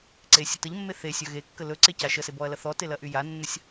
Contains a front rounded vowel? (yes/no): yes